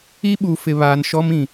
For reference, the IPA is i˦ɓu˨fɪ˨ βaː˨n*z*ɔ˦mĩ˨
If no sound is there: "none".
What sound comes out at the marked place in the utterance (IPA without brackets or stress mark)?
ʃ